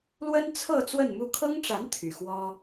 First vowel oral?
yes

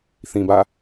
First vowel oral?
no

